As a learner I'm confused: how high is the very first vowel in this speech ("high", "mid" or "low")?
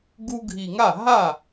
high